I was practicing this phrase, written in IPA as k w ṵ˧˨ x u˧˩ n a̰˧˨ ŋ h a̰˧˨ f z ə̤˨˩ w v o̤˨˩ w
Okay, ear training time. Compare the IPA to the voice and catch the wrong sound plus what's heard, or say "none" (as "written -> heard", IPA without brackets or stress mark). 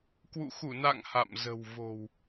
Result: f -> m